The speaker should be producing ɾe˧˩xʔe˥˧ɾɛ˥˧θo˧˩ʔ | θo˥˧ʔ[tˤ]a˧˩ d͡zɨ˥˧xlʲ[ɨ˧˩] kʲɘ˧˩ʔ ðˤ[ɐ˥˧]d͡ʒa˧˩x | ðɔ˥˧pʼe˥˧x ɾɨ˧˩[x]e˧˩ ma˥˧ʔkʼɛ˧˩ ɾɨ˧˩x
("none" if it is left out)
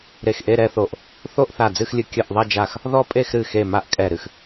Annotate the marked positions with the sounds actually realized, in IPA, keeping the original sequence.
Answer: θ, ɨ˧˩, ɐ˥˧, x

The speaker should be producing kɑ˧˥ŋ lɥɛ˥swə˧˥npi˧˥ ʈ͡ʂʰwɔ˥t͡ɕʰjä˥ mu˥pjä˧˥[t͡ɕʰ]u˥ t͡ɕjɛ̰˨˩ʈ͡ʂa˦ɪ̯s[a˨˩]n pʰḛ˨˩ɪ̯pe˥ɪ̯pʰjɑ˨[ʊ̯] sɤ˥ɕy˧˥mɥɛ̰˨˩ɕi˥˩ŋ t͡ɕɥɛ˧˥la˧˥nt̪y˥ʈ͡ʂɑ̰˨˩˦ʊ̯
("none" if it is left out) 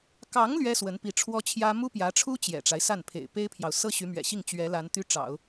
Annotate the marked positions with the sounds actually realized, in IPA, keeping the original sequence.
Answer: ʈ͡ʂʰ, a˥˩, ʊ̯

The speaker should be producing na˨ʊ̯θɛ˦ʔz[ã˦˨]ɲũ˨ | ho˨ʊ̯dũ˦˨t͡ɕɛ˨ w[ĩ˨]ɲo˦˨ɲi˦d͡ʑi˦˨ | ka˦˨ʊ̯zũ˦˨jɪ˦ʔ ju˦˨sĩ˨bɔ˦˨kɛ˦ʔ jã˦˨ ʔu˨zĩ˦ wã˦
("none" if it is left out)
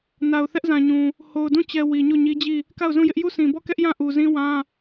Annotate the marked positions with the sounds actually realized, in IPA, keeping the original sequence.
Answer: ã˨, i˨

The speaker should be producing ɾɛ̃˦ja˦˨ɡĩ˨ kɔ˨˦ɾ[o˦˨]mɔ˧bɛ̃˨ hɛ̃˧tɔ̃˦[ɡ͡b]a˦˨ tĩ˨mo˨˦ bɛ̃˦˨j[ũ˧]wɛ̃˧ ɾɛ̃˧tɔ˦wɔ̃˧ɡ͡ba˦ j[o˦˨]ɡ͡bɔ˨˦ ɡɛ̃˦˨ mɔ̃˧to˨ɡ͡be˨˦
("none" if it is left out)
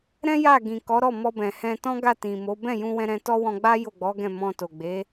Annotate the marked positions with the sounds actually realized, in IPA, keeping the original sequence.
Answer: ɔ˦˨, ɡ, ũ˧, o˦˨

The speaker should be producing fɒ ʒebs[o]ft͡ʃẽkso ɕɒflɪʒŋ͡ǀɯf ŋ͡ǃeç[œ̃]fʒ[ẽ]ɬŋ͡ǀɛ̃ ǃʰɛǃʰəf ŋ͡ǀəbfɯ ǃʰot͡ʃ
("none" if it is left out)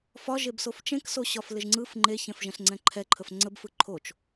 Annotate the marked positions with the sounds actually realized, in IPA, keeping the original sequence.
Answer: o, ɛ̃, ɛ̃

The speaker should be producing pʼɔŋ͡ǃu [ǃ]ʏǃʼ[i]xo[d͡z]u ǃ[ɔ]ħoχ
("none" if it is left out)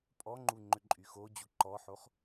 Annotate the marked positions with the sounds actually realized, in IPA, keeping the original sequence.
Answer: ŋ͡ǃ, y, d͡ʑ, ɔ

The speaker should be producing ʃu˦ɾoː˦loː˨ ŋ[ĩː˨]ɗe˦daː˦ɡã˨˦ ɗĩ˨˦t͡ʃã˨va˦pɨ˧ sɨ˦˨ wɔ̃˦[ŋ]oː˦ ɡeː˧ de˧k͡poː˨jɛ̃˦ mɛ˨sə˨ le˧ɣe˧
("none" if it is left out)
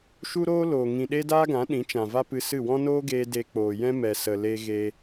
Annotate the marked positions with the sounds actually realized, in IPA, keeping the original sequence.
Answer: ĩ˨, n

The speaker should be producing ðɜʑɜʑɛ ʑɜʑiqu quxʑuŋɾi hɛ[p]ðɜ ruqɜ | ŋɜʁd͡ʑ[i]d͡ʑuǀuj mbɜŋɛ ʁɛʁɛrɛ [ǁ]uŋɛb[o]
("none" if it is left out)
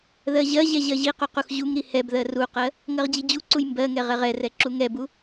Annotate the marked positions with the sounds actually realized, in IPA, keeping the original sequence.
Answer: b, i, ǁ, u

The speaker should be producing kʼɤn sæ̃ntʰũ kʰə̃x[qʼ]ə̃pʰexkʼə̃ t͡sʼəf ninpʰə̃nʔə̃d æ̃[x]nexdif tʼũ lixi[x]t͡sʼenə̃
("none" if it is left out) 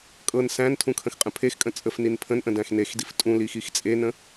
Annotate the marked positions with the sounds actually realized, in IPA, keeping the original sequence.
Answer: qʼ, x, x

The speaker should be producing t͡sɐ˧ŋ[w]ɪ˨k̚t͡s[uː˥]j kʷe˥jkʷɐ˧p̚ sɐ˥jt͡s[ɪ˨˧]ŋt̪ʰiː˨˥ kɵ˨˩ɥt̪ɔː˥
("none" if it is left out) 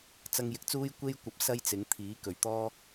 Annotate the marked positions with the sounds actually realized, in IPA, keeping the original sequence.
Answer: j, uː˥, ɪ˨˧

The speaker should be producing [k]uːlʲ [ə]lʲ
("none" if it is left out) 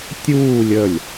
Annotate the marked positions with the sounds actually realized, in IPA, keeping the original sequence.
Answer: tʲ, ə

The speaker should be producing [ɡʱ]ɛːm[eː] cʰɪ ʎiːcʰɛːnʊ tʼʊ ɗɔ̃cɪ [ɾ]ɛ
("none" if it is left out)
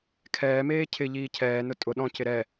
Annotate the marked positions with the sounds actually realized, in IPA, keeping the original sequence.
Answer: kʰ, eː, ɾ

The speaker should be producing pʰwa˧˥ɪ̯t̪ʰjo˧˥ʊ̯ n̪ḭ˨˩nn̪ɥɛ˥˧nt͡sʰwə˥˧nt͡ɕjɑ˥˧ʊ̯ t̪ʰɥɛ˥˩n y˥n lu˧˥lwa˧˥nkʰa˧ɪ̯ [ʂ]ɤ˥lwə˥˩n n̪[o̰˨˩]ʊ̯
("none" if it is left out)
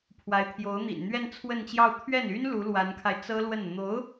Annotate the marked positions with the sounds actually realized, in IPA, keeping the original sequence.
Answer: t͡s, o˧˥

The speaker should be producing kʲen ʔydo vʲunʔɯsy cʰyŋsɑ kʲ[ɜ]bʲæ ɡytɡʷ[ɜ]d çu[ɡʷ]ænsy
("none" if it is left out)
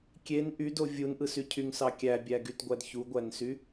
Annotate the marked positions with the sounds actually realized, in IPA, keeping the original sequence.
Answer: æ, æ, ɡʷ

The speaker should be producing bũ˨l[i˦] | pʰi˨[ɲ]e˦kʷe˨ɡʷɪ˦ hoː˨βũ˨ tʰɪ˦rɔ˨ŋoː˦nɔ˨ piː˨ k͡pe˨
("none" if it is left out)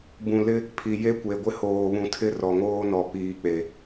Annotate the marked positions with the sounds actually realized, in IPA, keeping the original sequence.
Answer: ɪ˦, j

